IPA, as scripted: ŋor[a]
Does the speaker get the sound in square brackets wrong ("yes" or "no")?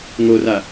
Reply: no